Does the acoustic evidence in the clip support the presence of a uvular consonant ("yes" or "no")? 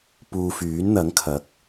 no